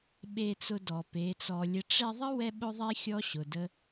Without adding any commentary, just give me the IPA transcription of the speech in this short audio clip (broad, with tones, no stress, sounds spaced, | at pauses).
ɓ e˧ t͡s ʊ˧ d ɔ˨ p e˨˦ t͡s ɔ˧ lʲ ə˦ ʈ͡ʂ ɛ˧ ðˤ ə˦ w ɛ˦ ɓ ʊ˦ ðˤ e˦ xʲ ɔ˦ ɕ ʊ˨ d ə˦